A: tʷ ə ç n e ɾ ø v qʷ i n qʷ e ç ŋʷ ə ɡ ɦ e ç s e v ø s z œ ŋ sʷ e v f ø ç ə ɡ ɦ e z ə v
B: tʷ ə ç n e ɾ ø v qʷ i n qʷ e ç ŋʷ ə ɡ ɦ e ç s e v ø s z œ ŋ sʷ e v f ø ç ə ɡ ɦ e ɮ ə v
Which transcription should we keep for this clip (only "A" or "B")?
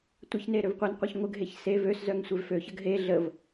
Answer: B